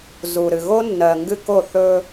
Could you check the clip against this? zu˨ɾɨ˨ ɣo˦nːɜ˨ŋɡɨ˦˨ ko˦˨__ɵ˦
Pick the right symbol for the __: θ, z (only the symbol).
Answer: θ